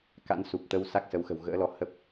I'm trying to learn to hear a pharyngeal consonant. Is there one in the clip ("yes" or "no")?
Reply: no